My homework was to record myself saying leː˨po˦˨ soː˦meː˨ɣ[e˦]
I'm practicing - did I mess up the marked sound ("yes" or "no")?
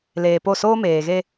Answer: no